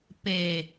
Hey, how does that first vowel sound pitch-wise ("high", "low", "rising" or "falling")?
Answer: low